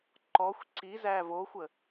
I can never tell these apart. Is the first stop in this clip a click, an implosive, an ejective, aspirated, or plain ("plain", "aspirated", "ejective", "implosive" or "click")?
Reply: click